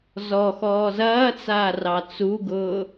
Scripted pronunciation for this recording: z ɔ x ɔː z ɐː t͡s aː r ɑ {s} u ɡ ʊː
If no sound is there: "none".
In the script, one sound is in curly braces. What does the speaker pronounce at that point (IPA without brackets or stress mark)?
t͡s